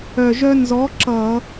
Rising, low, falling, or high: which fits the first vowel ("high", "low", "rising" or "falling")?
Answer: low